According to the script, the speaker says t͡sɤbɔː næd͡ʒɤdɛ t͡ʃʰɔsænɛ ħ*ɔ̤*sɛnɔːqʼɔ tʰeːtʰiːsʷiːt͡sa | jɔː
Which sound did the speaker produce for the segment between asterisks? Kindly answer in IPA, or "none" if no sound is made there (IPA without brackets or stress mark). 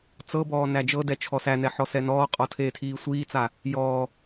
ɔ